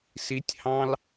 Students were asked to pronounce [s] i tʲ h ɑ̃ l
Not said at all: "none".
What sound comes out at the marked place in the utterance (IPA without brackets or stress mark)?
s